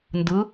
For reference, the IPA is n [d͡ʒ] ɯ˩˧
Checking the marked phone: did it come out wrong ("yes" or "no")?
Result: yes